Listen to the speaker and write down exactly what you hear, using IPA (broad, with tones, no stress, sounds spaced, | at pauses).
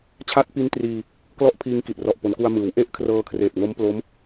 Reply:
t͡ɕʰ a˦˥ t̚ p i˦˥ n t r iː˧ | k l ɔ˦˥ ʔ pʰ iː˧ ŋ k i˨˩ t̚ r ɔ˨˩ ʔ p o˩˦ n k u˧ a̯ m ɯː˩˦ w ʔ e˥˩ ʔ kʰ r ɤː˧ kʰ r eː˨˩ t̚ ŋ o˦˥ m p l o˦˥ m